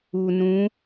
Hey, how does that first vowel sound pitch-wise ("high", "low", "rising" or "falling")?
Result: low